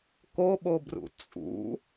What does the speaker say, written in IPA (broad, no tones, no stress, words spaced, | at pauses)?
koɓobrṵ t͡sʼṵ